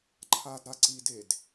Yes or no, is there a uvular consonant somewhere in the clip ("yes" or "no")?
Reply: no